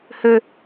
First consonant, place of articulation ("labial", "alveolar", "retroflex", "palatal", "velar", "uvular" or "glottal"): glottal